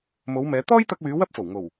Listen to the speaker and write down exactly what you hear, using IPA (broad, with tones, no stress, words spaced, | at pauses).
mo˨˧wmɛː˨˧ t̪ɔː˥jt̪ɐ˧k̚wyː˨˧ wɐ˥p̚fo˨˩wŋo˨˩w